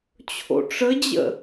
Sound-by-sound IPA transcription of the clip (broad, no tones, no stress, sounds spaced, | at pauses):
t͡ɕʰ o̰ ʈ͡ʂ ə d͡ʑ ə̰